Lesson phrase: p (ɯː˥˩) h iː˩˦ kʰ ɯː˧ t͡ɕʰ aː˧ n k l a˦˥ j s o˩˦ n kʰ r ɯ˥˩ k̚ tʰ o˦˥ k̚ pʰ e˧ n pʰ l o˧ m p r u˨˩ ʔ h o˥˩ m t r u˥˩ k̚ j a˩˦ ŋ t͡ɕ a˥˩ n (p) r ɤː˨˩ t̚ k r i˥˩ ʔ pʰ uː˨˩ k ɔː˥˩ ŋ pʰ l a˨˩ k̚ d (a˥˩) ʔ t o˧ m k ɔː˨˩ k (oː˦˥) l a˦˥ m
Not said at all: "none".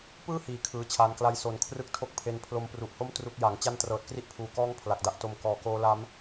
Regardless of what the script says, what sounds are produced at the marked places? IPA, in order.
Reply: ɯː˥˩, t, a˥˩, oː˦˥

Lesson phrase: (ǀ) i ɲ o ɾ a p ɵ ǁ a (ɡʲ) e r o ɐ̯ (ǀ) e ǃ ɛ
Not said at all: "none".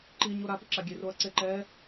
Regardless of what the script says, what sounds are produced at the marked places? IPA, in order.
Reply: ǃ, ɡʲ, ǀ

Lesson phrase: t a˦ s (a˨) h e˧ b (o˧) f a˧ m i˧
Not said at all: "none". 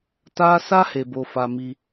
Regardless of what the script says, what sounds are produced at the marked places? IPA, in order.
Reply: a˦, o˧

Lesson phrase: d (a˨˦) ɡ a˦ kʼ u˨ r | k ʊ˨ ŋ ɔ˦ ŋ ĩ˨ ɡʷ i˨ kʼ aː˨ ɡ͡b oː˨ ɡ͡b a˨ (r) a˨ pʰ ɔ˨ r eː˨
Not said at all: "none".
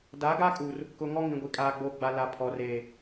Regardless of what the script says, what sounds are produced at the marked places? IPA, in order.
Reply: a˨˦, l

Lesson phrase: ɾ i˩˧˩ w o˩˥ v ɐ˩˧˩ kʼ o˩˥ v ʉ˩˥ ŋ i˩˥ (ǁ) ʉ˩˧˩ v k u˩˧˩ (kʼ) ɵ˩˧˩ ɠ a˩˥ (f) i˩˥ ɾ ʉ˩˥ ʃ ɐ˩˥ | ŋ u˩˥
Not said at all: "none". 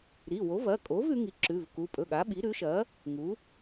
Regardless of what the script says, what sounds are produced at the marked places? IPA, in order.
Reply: ǁ, pʼ, ɓ

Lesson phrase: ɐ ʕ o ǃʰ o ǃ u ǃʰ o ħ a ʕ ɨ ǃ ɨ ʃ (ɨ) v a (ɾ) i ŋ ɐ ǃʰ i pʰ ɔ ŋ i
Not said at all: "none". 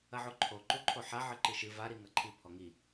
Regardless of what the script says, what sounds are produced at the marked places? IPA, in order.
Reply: ɨ, ɾ

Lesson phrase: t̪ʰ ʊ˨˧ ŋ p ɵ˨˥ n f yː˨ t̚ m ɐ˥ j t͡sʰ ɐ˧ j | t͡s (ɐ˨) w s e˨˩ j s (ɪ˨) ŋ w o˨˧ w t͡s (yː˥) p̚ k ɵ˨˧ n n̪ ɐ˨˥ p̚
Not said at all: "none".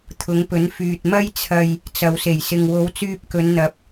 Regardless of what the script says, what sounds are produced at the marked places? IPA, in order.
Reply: ɐ˨, ɪ˨, yː˧

